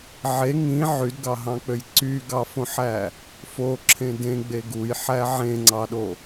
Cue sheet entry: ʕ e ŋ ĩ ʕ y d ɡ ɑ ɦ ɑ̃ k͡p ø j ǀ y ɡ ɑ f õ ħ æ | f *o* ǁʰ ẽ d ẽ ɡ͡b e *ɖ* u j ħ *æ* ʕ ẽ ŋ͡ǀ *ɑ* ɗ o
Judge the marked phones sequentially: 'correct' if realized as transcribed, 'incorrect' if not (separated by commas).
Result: correct, incorrect, correct, correct